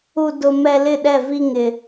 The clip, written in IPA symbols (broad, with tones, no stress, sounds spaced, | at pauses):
u˦ d ʊ˦ m ɛ˦ l ɪ˦˨ ɗ ɛ˦˨ v i˦ ŋ ɪ˦